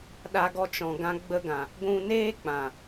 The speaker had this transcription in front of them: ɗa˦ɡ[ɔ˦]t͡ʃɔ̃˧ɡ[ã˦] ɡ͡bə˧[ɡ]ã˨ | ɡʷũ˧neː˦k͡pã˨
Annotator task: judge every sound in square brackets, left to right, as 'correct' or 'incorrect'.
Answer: correct, correct, correct

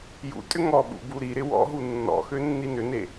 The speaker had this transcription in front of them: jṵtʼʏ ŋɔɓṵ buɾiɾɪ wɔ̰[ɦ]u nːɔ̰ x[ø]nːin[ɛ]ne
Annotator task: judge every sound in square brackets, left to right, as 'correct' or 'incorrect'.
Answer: correct, correct, incorrect: ʏ

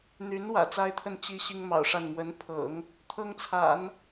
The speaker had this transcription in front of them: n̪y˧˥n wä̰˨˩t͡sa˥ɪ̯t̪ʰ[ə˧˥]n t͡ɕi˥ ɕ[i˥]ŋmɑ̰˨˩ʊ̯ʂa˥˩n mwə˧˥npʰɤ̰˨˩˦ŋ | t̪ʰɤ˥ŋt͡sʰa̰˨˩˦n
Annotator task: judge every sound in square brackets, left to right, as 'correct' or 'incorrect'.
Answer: incorrect: ə˥˩, correct

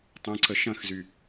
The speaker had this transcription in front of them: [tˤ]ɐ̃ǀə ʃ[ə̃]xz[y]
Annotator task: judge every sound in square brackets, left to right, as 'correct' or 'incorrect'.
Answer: correct, incorrect: ɐ̃, correct

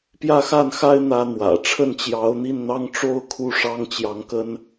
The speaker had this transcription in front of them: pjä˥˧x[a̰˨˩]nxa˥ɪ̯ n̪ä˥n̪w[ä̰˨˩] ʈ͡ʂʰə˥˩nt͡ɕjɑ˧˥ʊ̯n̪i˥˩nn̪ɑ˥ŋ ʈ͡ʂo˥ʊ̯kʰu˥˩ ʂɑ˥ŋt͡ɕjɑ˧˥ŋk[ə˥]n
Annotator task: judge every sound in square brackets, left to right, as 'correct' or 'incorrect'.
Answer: incorrect: a˥˩, correct, correct

